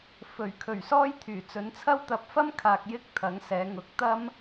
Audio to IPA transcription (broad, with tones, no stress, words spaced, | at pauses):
fɵ˨˩ɥkʰɵ˨˩ɥsɔː˥j t̪ʰyː˨˩t͡sɵ˨˧nt͡sʰɐ˥w t̪ɐ˨˥p̚fɐ˥mkʰaː˨k̚ jɪ˥k̚t̪ʰɐ˨˥ŋsɛː˨˧ŋʊ˨˥k̚ t̪ɐ˥m